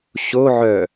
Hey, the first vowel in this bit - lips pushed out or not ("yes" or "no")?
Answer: yes